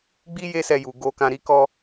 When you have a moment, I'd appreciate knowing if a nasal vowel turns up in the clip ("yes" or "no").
yes